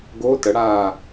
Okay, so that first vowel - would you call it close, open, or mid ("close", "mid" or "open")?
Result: mid